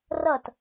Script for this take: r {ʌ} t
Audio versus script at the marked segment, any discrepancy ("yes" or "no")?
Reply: no